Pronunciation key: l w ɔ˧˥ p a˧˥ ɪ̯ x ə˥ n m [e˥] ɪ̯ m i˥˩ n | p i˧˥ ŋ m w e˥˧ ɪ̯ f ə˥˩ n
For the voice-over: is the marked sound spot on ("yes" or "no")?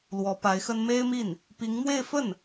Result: yes